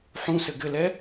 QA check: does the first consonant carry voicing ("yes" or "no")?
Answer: no